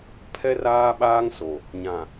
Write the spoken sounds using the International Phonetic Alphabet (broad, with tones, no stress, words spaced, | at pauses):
pʰɛ˦raː˦ ɓaː˦ŋso˨ | ɲã˨